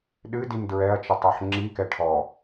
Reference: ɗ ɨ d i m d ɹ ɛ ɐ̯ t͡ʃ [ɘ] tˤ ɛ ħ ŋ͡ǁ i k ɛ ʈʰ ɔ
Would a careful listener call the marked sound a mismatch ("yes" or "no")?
no